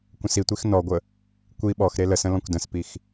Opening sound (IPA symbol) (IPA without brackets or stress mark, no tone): kʷ